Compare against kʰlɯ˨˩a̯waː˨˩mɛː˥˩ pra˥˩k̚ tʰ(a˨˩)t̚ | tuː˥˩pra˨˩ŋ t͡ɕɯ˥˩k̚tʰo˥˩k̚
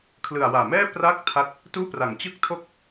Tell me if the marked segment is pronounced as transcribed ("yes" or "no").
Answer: no